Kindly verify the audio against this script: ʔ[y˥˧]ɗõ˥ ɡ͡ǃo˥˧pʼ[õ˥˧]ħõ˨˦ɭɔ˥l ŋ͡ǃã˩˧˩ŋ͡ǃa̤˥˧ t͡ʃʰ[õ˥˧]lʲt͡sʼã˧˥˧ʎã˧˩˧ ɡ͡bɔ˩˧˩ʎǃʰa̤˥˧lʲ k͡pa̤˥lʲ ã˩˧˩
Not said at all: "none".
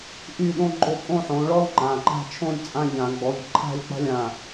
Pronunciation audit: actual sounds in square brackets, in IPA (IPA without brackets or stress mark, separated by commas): y˥˧, õ˥˧, õ˥˧